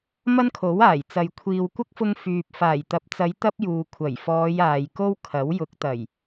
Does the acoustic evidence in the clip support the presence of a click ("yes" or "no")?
no